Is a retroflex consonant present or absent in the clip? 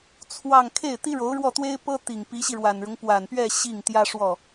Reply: present